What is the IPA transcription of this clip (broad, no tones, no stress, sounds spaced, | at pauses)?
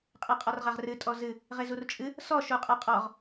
qʼ e qʼ ɔ r ʁ a ʁ r ɨ tʼ ɔ z ɨ | ʁ e z u r t͡ʃʼ ɨ | s ɔ ʃ u qʼ a qʼ ɔ ʁ